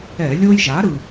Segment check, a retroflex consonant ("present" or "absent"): absent